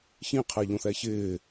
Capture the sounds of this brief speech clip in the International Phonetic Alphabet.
ç ĩ qʰ ɛ ʎ õ θ ɛ ç ɪː

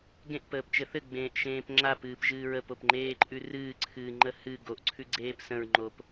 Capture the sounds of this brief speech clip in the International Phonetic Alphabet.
ɡ ẽ ʔ p əː p t͡ʃ ɘ θ ɘ ɡ͡b ẽː ʔ ʃ ẽː p ŋ͡ǁ a p ɨː p ʒ ɨː ɹ ə p o p ŋ͡ǃ eː ǃʼ ʉ r ɨː ǀʰ ɨː ŋ͡ǃ ə h ɨ ɡ o ʔ ǀʰ ʉ ɡ͡ǀ eː p s ə̃ ɹ ŋ͡ǃ o p

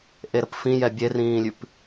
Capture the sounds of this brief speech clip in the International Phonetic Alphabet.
ʔ e ɾ ə p f ĩ j ɛ bʲ e r ĩː lʲ ʉ p

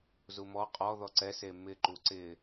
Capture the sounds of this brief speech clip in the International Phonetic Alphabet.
z u m ɔ qʼ ɔ ð ɔ ǀ ɛ s e m ɪ ǃ u ǀ ɪ

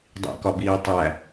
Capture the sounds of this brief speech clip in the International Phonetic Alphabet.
dˤ ḭ k ɒ b iː tˤ æ

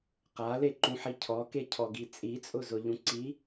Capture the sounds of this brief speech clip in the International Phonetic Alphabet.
q a l e ǃ ũ ħ i cʰ ɔ k e cʰ ɔ ɡ i t͡sʼ i t͡sʼ ʊ z ʊ ʎ ũ ǀ i

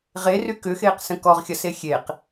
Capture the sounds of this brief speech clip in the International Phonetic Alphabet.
ʁ e r y k ʏ x eː q s ə̃ k ɔ ʁ xʲ ɐ s e xʲ e q

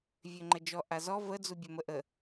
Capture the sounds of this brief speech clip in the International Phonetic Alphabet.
vʲ ø ŋ͡ǃ ə d͡ʒ ɔ ʔ a z ɔ v ə d͡z u bʲ ø m ə ʔ ə

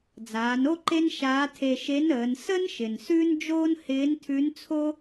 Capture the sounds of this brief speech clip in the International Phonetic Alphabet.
d͡z aː˩˧ n o˥ ǃ e˥ n ʃ aː˧˥ tʰ e˧ ʃ e˧˥ n əː˩˧ n s ə˥ n ʃ ɪ˩ n s ʉ˥ n d͡ʒ oː˥ n h ɪː˧˥ n tʰ ʉ˧˥ n t͡sʰ o˥

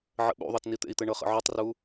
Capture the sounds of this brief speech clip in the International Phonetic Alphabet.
ʕ ə̰ ɓ ṵ ðˤ ɤ t n i t̪ ḛ i̯ t̪ ɛ ɳ ɤ χ ə̰ ʕ u tˤ r u

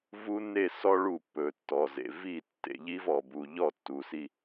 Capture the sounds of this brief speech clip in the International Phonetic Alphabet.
v u˦ n e˦˨ s ɔ˦ ɭ u˦˨ pː ɵ˨ tː ɔ˨ z ḛ˨ v i˦˨ tː ḛ˨ ʎ i˦ v ɔ˨ b u˨ ʎ ɔ˦˨ tː u˨ s i˦

